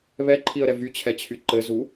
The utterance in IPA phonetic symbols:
β ɛ ǃʰ i ə̯ ɾ ɛ v y t͡ɕʰ ɛ t͡ɕʰ y ǃ ɘ z u

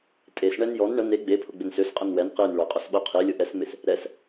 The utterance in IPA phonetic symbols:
tʼ e s ɳ ɛ n j ɔ n ɳ ə n e ɡ͡b e pʰ ʊ ɡ͡b ɪ n s ø s qʼ ə n w ɛ n q i n ɭ o qʼ ʊ s ɓ o qʰ i lʲ ʊ ʔ ɛ s m ɪ s | ɾ ɛ s

